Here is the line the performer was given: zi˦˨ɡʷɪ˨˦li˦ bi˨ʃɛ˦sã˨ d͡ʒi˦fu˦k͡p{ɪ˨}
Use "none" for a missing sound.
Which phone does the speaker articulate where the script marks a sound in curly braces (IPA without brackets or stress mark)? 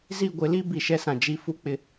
ɪ˦